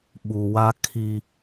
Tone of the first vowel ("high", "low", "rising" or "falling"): low